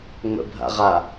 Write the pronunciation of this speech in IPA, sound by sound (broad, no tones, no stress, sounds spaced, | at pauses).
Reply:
ŋ͡m ə̰ bʱ a̰ ʁ a